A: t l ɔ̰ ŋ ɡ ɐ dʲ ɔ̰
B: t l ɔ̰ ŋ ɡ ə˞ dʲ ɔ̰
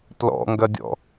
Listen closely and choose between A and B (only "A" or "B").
A